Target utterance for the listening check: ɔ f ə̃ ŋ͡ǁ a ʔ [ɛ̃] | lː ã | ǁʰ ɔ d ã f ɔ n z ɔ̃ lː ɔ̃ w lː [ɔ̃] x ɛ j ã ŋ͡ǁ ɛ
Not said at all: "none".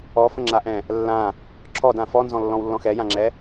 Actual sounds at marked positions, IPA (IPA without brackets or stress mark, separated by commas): ɛ̃, ɔ̃